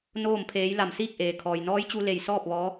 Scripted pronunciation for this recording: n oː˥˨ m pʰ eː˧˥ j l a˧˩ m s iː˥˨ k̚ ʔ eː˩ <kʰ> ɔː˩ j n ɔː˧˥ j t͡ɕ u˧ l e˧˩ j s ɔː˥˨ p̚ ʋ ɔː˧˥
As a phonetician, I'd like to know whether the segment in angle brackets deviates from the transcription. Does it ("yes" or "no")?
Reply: no